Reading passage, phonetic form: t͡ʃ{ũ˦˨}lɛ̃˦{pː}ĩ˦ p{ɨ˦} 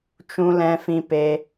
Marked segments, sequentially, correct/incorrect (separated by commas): incorrect, incorrect, incorrect